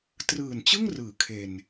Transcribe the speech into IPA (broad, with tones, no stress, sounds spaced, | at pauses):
t r ɯː˨˩ n t͡ɕ ɯ˥˩ ŋ r ɯː˩˦ kʰ e˧ n